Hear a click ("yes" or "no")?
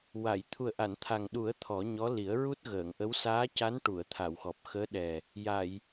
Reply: no